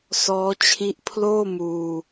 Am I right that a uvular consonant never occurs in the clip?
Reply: yes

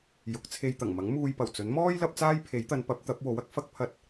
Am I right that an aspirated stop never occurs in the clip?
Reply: no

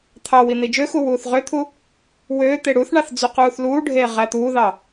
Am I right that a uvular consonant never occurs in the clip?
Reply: no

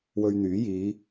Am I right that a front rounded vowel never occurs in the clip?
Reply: no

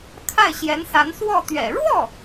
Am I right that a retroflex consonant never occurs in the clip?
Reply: no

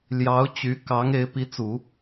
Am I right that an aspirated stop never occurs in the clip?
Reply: yes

